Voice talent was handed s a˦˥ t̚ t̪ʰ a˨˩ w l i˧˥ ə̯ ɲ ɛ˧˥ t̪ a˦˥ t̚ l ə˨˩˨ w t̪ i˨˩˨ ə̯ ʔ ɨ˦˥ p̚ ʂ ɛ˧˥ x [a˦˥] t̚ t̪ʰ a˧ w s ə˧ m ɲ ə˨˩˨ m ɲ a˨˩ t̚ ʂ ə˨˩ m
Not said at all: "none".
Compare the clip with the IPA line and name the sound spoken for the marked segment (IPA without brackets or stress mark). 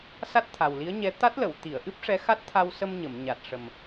a˦˥